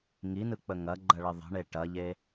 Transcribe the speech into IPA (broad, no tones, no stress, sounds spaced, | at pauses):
ŋ i n ɯ k͡p ə ŋ ɐ ɡ͡ǃ ɐ ɭ ə ðˤ ə̤ ɳ e ʈ ɐ ʎ e